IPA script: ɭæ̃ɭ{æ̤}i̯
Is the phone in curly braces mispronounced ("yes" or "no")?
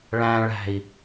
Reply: no